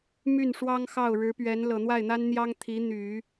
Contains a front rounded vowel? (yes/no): yes